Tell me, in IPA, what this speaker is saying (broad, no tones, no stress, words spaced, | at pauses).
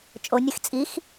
t͡ʃʼonʲɨx t͡sʼix